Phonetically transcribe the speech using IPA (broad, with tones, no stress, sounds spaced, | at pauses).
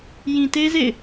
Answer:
j ĩ˨ t e˦ z ḛ˦˨ ɪ̯